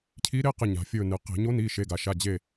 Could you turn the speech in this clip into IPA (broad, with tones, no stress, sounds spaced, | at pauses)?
cʰ i˧˥ ɾ e˧˥˧ q ɨ˧˩ ɲ a̤˩ fʲ ɵ˧˩ n ɨ˩ q e̤˧˩˧ ɲ o˧˥ n i˩˧˩ ʃ e˩˧˩ ɡ a˩ ʃ a˩˧˩ d͡ʑ e˧˩